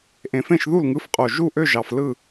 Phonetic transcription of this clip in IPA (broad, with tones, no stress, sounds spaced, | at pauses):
ʔ ẽ˨˩ f ẽ˥˩ ʃ ð u˥˩ l ŋ ɯ˨˦ f qʼ o˨˩ ʒ u˥˩ ʔ ø˥˩ ʒ ɑ˨˩ f l ɯ˥˩